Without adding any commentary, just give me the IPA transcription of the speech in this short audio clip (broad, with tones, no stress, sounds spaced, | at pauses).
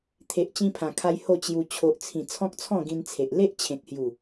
t̪ʰ e˨ ʔ t͡ɕ ĩ˧ pʰ ã˨˩ kʰ a˧ j h o˥˧ t͡ɕ j u˧ t͡ɕʰ o˨ ʔ t͡sʰ ĩ˨˩ t͡sʰ ɔ̃˦ k̚ t͡sʰ ɔ̃˥˧ ɡ ĩ˧ n t͡sʰ e˨ ʔ l e˦ ʔ t͡ɕʰ ẽ˨ k̚ h j u˨˩